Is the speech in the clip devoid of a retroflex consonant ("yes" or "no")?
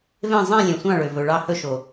no